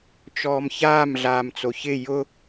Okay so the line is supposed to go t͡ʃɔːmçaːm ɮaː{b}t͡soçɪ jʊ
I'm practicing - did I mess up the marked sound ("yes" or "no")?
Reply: yes